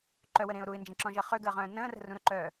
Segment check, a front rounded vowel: present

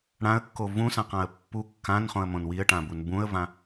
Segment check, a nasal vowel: present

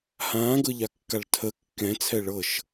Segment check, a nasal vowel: present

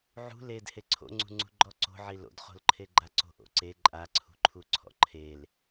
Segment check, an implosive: absent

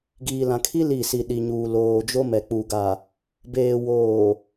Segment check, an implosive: present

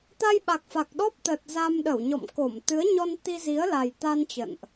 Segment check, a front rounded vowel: absent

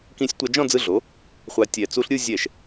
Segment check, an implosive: absent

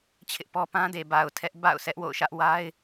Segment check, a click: absent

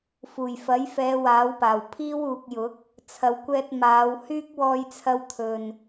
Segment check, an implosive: absent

